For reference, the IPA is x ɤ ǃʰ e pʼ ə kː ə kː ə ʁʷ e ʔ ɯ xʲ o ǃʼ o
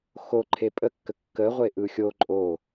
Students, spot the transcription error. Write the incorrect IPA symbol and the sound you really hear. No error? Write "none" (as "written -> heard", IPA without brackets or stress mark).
ɤ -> o